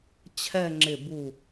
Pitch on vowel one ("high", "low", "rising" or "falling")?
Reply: falling